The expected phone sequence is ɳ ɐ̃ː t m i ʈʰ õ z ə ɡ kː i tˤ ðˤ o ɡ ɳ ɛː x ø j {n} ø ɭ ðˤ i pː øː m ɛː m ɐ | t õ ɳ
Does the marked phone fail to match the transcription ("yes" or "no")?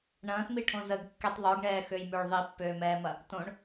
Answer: yes